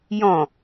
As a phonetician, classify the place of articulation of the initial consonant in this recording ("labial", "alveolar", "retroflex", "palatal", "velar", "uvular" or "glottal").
palatal